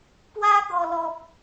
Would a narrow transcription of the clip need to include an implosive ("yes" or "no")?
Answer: no